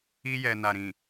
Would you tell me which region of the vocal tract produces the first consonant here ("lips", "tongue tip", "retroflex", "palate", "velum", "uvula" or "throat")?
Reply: palate